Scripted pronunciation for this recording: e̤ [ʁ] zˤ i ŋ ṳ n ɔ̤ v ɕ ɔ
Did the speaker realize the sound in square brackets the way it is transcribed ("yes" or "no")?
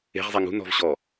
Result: yes